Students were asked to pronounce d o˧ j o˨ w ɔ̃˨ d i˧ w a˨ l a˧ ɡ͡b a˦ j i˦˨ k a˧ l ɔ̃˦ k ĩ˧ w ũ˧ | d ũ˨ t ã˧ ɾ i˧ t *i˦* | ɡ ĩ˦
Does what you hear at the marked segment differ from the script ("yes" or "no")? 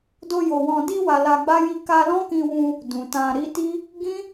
no